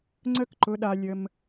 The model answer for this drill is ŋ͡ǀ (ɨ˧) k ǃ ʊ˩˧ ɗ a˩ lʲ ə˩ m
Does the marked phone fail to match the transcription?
yes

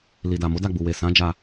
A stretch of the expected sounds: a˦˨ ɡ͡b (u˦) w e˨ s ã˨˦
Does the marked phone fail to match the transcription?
yes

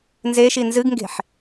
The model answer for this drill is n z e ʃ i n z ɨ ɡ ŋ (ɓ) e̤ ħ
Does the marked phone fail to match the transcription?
yes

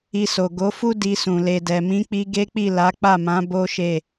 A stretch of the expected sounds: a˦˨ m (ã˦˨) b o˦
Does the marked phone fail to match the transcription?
yes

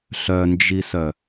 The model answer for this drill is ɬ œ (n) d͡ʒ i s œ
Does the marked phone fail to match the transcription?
no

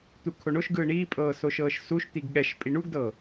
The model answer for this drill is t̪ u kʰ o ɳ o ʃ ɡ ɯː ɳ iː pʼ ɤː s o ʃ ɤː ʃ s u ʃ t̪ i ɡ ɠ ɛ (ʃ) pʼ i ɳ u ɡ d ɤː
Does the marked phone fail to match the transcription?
no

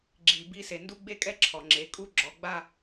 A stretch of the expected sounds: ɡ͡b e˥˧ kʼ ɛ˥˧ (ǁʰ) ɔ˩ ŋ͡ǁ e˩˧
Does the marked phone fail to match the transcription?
no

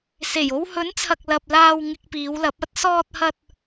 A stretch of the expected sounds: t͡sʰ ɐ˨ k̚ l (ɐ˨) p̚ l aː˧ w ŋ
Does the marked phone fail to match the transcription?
no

